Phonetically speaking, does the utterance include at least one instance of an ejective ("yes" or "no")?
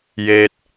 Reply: no